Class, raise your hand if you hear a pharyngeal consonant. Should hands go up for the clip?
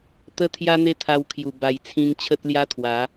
no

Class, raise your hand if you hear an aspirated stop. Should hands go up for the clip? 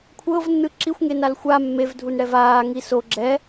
yes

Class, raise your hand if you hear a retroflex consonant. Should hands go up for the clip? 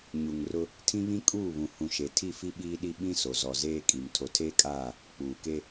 no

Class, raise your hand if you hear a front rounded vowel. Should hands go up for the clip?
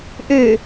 yes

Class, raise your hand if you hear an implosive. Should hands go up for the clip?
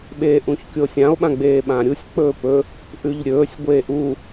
yes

